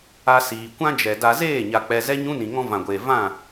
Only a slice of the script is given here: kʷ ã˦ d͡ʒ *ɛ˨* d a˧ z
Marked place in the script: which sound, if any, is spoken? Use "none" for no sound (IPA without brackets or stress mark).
ɛ˨